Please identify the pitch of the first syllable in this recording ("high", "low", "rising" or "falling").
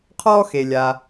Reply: high